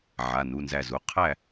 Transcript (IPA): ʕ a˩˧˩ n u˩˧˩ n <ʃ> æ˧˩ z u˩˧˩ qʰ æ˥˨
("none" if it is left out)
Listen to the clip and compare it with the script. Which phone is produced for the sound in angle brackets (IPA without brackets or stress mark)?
z